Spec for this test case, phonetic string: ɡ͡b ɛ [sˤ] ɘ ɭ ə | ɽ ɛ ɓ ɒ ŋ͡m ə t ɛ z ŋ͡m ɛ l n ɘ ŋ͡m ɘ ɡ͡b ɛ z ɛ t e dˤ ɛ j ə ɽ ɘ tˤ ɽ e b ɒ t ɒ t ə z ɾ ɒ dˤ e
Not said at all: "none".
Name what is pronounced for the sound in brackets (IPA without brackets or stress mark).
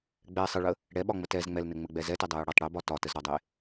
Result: sˤ